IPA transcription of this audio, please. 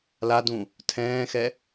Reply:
l a d ũ | tʰ ɛ̃ː x ɛ

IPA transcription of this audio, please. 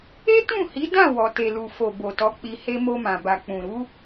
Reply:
e˦ t ũ˦˨ h i˨˦ d ã˦˨ w ɔ˨ t e˨ l u˨ f o˨ b o˨ t ɔ˨˦ k͡p i˧ h e˦ m o˧ m ã˨ b a˨ k͡p ũ˨ ɾ u˨˦

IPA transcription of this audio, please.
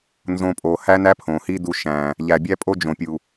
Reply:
n z õː˧ pʼ oː˨ h æ˦ n æ˦ pʰ õː˨ h iː˦ d u˧ ʃ æ̃˨ | ʎ æ˨ bʲ æ˦ pʼ o˦ d͡ʒ õ˨ pʲ u˨

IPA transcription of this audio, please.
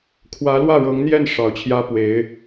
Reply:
kʰ w ä˧˥ l w ä˥˩ ɻ ɤ˧˥ ŋ n̪ j ɛ˥˩ n ʂ ɑ˨˩ ʊ̯ t͡ɕʰ j ä˥ p w e˧˥ ɪ̯

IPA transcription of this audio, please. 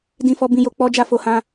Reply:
d ĩ˧ f ɔ˧ b ĩ˧ j o˧ k͡p ɔ˦ d͡ʒ a˦˨ f o˧ h ã˧

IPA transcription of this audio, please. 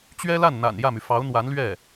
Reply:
t͡ɕ ɥ ɛ˥ l a˥˩ n n̪ a̰˨˩ n j ä˥˩ m y˩ f ɑ˧˥ ʊ̯ n̪ w a˧˥ n l ɥ ɛ˥˩

